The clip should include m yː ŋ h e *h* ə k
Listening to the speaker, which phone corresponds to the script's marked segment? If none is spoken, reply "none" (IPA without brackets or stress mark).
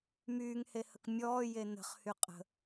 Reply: h